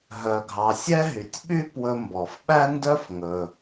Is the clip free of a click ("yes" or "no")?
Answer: yes